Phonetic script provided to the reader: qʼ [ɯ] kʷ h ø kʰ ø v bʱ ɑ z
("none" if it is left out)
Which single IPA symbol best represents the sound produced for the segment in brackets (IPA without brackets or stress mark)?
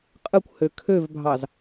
ɯ